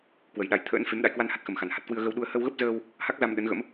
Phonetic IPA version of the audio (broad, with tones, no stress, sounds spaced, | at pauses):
k w ə˨˩ j ɗ a˨˩ j t̪ʰ ə̰ː˧˥ n f e˨˦ m ɗ a̰˧˨ j k w a˧ n h a˦˥ t̚ x ə˨˩ m x a˨˩ n h a˨˩ t̚ k w ɨ˧ ə̯ ɣ ə˧ w ɗ u˧ ə̯ h ə˧ w ɣ ə˦˥ p̚ z əː˧ w | h a˦˥ k̚ z a˧ m ɗ ə˨˦ n ɣ ə̰˧˥ m